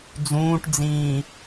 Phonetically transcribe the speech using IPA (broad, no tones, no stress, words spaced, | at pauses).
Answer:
d͡zũːʈd͡zĩː